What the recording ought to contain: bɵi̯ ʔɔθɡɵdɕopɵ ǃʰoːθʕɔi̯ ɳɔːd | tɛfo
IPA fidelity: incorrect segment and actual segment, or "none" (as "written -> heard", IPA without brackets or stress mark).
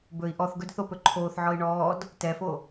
ɕ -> θ